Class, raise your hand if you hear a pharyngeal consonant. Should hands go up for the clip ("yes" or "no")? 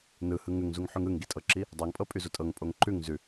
yes